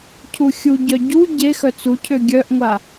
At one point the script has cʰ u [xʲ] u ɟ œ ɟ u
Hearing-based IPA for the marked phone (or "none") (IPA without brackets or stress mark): xʲ